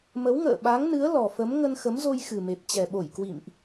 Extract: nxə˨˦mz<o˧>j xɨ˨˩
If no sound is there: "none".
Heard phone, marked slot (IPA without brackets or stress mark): o˧